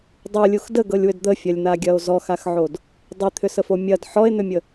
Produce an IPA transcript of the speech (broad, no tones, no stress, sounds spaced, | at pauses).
dˤ u lʲ u x d ə ɡ ɤ lʲ w ʏ d d̪ ə fʲ ɐ lʲ n̪ a ɡʲ ɐ o̯ z ɔ x a x ʕ o d | dˤ i t̪ʰ ʏ s ə f o mʲ ɐ d ħ ɔ e̯ n̪ ʏ mʲ ə